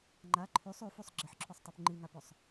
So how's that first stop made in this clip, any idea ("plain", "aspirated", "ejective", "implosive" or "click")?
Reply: click